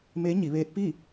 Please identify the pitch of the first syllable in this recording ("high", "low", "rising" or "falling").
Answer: rising